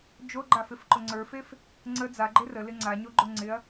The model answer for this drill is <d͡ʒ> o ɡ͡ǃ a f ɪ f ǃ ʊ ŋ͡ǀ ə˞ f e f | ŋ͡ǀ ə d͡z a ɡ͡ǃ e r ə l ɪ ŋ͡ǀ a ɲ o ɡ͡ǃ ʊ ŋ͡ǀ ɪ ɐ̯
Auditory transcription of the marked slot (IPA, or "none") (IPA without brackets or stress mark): d͡ʒ